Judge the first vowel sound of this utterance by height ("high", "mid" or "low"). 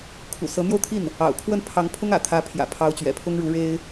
high